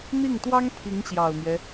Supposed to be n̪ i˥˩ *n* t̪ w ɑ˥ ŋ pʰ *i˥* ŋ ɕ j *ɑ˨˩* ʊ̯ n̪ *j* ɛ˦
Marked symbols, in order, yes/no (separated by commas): no, no, yes, yes